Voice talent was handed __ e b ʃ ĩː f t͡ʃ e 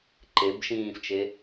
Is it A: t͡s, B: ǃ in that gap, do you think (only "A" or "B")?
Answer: B